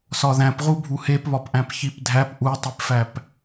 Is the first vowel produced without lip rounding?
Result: no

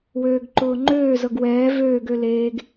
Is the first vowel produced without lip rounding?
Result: no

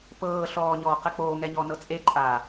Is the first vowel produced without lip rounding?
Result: yes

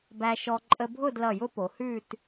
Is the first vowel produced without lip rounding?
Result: yes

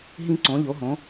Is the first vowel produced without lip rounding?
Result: yes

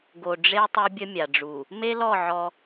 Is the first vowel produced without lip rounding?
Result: no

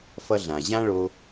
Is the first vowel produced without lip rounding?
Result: yes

